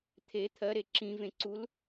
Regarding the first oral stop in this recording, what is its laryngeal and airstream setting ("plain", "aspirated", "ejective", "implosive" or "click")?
aspirated